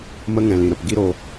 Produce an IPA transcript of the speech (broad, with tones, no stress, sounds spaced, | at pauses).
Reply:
m ə˧ ŋ ɛ̃˨ l ĩ˨ ɾ ə˨ p ɡ i˦ ɾ o˧